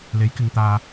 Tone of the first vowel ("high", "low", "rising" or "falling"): rising